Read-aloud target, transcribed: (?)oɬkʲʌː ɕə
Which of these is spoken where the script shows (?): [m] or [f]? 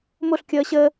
m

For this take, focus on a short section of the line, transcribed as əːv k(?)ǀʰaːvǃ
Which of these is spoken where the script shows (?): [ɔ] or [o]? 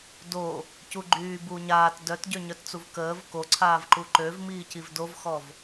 o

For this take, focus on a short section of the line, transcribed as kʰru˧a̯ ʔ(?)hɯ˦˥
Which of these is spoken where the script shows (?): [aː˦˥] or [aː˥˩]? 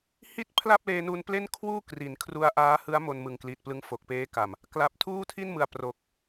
aː˦˥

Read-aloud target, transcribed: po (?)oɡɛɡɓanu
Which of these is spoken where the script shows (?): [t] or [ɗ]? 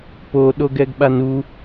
ɗ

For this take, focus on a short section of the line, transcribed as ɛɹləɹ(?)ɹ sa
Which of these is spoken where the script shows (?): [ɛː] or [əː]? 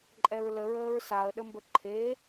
əː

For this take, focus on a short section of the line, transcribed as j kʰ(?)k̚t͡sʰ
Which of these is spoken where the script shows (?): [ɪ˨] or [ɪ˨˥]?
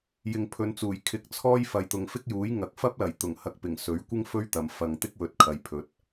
ɪ˨˥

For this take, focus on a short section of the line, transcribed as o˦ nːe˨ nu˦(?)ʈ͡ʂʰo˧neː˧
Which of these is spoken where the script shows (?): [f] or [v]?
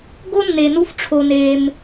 f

